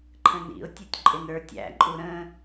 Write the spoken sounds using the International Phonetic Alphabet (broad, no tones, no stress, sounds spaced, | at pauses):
ǃʰ ə̃ n ḭ ʊ̯ tʲ u tʲ ǃʼ ɪ n ə˞ tʲ æ̰ ǃʼ u ɾ ə̃